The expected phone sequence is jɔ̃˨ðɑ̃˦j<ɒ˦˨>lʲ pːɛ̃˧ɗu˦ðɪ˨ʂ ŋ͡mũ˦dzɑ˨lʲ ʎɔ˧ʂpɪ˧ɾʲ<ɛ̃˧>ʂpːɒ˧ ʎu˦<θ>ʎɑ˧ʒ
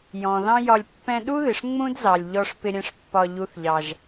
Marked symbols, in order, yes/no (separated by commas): no, yes, yes